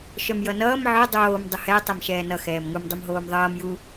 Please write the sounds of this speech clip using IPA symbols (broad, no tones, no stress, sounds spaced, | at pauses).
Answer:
ʃ œ m j ʌ n ʌː m ʕ œ dˤ oː m dˤ ə h ɛ tˤ ɛ m ʃ ɛː n ʌ x ɛː m ŋ u m dˤ u m ɦ oː m ðˤ ʌː m j u